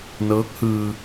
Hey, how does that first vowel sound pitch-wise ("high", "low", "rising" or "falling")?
rising